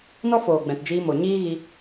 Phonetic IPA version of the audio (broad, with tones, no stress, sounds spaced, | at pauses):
n ɔ˦ f oː˨ ɡ͡b ɛ̃˨ t d͡ʒ iː˧ m o˨ ɲ iː˦ ɣ i˧